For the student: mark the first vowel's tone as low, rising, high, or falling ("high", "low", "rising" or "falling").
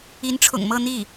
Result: rising